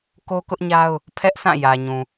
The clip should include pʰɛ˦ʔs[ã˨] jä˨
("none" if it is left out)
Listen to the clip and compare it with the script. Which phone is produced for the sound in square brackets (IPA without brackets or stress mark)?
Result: ã˦˨